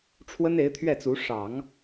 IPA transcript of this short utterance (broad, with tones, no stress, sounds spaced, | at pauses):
ʈ͡ʂʰ w ə˥ n e˧˥ ɪ̯ t̪ʰ ɥ ɛ˥˩ t͡s u˧˥ ʂ ɑ˨˩˦ ŋ